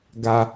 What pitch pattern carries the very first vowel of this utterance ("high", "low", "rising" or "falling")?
high